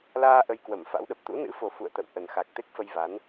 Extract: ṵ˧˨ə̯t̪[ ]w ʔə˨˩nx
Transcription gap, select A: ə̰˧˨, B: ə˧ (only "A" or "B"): A